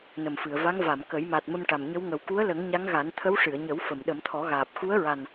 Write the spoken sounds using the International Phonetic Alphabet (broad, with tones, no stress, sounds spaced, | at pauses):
n ə˨˩ m f ɨ˨˩˨ ə̯ v a˧˥ ŋ v a˨˩˨ m k ə˨˩˦ j m a˨˩ t̚ m ə˧ m ʈ a˨˩ m ɲ ə˧˥ w ŋ ə˨˩ w k u˧˥ ə̯ l ə˨˩˦ ŋ ɲ a˧˥ ŋ ɣ a˨˩˦ n t̪ʰ ə˧˥ w ʂ ɨ˨˩˨ ə̯ ɲ ə˨˩˦ w f ə˨˩˨ m ɗ ə˨˩˦ m t̪ʰ ɔ˨˩˦ ɣ aː˨˩ p̚ x u˧˥ ə̯ ɹ a˨˩ n